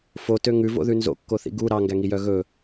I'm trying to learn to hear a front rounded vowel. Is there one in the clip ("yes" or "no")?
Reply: yes